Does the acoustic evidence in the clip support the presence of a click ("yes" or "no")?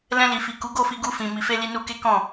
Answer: no